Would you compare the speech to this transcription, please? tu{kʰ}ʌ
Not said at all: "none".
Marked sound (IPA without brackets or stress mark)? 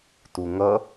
ŋ